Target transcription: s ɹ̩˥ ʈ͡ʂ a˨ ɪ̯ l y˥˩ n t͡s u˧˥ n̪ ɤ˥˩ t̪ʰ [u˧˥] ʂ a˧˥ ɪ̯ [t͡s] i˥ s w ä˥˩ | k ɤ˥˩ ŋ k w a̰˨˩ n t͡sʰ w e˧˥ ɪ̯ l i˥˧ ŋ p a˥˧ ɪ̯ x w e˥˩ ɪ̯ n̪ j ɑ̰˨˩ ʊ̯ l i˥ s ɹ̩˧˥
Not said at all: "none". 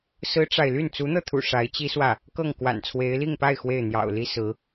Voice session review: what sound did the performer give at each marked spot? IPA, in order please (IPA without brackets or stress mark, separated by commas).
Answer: ṵ˨˩, t͡ɕ